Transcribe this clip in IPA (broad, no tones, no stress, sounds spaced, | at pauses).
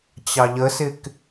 t͡ɕ ɑ ʎ ə s ɪ k